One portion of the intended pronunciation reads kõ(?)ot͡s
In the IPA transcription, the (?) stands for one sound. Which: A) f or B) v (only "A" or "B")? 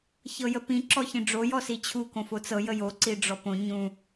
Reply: A